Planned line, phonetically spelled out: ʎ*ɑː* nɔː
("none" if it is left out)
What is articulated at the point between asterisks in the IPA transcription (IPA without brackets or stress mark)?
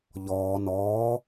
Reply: ɔː